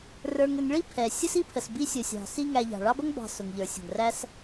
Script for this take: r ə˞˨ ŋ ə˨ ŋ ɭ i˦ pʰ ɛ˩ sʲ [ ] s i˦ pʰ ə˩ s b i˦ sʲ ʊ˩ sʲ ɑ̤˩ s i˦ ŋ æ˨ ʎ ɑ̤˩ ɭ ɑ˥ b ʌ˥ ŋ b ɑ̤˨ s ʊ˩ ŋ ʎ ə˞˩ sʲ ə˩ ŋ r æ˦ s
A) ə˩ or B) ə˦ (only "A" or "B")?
B